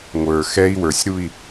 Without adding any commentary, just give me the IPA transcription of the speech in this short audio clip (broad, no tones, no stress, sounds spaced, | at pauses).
ŋʷ ə˞ x ɛ i̯ w ə˞ sʲ ɾ u i̯